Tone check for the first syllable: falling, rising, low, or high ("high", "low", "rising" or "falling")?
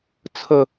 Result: high